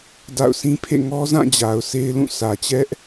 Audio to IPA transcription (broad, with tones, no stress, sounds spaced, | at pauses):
d a̰˦˨ ʊ̯ sʰ ĩ˦ pʰ ḛ˦˨ ŋ ɔ˦ z ã˦˨ d͡ʑ a˨ ʊ̯ s e˦ ɪ̯ l ũ˦˨ sʰ ä˨ t͡ɕ ɛ˦ ʔ